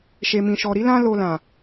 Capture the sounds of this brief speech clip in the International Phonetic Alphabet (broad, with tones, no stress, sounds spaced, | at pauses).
ʃ e˨ m ĩ˨ ʃ ɔ˨ ɾ i˨˦ l ã˦ l o˧ l ã˨